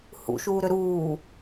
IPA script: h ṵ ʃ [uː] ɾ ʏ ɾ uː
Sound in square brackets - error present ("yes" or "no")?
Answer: no